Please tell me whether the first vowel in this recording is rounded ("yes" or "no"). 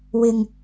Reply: no